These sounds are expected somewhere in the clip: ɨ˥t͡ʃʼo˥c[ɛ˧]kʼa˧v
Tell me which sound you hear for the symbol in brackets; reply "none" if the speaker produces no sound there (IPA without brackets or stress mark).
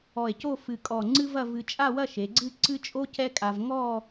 ɛ˥